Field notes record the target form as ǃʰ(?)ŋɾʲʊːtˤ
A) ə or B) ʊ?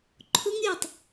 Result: B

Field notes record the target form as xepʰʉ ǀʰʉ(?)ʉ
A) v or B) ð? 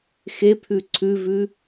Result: A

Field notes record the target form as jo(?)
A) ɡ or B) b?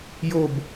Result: B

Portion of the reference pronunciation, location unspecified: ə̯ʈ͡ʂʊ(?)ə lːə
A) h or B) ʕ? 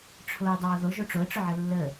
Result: B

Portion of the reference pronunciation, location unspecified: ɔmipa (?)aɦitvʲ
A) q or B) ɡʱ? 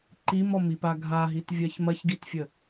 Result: B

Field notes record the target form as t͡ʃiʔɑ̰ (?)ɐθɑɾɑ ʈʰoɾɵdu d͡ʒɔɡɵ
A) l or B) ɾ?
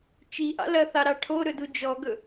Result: A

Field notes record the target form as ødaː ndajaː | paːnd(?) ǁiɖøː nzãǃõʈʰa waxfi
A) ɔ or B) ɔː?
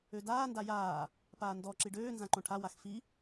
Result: A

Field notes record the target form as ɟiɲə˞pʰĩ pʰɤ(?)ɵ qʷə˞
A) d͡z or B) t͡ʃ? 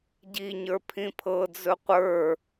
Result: A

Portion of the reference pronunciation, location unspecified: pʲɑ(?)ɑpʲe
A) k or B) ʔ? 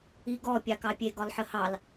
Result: A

